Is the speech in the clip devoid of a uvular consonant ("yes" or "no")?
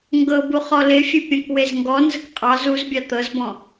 no